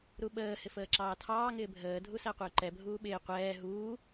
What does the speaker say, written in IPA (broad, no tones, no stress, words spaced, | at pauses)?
ɾuɓəː hɪfəːǁɑːtʰɑː ŋɪːbʱəː dʱusæqʷɪːǃɛ bʱuːɓɪː qʷɛː ɦuː